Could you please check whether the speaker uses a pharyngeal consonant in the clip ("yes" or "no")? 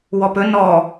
no